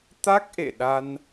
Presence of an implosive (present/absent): present